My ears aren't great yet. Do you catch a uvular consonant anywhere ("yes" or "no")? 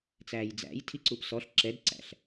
no